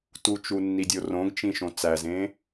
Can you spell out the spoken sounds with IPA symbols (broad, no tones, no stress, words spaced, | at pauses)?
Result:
tut͡ʃu nːidʲorõɡt͡ʃĩ ʃõt͡sæzẽ